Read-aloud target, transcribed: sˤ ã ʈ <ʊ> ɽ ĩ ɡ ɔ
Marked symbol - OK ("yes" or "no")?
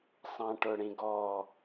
yes